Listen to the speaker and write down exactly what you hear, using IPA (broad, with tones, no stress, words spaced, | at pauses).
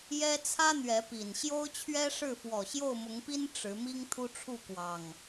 jɛ˦ t͡sʰä˦ n̪ɥɛ˨˦pi˨˩n ɕjo˦ʊ̯t͡ɕʰɥɛ˦ʂɻ̩˥˨ fwɔ˨˩ ɕjo˥˨ʊ̯mʊ˨˦ŋpi˦n ʈ͡ʂɻ̩˨˦mi˦ŋ t̪ʰu˦ʈ͡ʂʰu˥˨kwɑ˨˩ŋ